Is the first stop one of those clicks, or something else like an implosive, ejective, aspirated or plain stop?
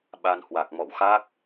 implosive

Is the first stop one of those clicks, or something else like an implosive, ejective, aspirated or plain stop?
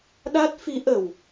implosive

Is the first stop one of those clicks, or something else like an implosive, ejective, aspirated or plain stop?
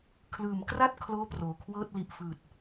aspirated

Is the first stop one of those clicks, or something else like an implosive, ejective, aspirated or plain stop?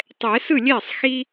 plain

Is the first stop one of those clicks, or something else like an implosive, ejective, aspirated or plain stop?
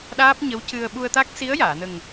implosive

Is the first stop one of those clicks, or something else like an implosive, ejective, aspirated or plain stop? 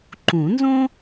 click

